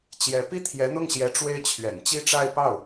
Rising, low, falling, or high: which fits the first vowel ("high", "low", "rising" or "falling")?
rising